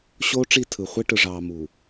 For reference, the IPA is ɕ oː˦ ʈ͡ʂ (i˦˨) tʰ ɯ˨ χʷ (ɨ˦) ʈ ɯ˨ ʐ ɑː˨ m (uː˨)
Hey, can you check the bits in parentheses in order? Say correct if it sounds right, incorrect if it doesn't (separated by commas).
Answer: correct, incorrect, correct